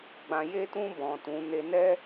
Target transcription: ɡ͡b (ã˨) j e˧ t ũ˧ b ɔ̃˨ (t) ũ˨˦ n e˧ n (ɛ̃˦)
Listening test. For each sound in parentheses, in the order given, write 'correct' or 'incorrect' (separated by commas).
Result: correct, correct, incorrect